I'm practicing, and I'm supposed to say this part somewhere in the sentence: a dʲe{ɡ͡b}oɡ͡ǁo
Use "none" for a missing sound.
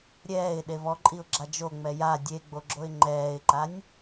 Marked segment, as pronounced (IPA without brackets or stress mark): ɡ͡b